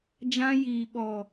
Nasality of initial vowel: nasal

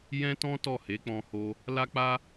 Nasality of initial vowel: nasal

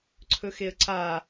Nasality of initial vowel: oral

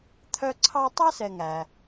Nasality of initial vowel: oral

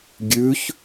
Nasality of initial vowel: oral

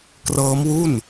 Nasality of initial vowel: oral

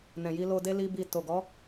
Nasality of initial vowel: nasal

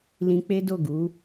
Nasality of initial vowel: nasal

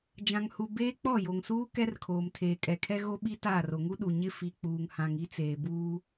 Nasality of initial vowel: nasal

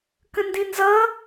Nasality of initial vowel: nasal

